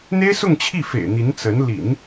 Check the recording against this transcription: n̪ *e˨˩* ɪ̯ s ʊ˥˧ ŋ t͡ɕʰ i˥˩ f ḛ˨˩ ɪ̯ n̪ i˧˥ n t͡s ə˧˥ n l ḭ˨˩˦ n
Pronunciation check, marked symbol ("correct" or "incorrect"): incorrect